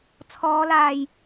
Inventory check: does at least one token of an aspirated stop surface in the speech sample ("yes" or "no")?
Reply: yes